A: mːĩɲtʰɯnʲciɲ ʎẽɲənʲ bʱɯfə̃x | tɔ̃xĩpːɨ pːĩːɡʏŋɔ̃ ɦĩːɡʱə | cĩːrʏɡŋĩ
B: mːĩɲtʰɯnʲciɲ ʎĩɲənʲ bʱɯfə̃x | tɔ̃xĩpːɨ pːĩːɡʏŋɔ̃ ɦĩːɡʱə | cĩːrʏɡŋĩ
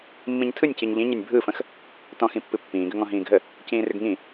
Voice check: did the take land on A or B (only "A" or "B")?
B